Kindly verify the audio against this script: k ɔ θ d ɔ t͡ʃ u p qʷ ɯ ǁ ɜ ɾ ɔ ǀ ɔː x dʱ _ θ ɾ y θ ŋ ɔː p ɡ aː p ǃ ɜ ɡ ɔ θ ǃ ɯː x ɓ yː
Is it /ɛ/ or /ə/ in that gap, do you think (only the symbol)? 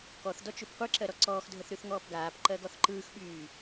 ə